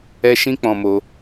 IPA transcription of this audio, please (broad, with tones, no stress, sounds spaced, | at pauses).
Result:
ɛ˦ ʃ ĩ˦ k͡p ɔ̃˧ m o˧